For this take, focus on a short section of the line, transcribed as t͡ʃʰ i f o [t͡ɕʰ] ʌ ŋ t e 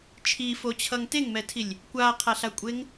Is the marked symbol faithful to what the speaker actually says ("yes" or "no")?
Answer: yes